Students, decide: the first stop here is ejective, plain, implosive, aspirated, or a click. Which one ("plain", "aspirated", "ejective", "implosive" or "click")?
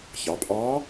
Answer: ejective